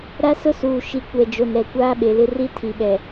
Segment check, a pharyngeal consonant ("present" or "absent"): absent